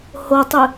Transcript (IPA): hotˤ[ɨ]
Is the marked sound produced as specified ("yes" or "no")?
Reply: yes